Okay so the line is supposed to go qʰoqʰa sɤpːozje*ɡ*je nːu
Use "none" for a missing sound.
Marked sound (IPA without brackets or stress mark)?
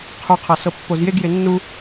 ɡ